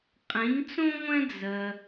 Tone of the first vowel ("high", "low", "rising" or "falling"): rising